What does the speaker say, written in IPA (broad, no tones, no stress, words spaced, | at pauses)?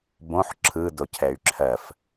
bõħ ǁʰɯdocʰɛy̯ ǁʰɜf